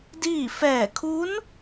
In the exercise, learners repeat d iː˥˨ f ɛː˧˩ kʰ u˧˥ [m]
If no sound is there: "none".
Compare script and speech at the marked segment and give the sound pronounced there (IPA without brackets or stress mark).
n